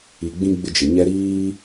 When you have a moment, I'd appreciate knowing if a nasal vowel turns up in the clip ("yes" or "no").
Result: yes